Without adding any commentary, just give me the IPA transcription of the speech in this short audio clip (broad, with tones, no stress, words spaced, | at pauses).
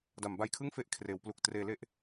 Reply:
da˩˦mba˧jkʰɯ˥˩ŋfe˦˥ʔ kʰreː˩˦wplu˨˩k̚ treː˩˦le˦˥ʔ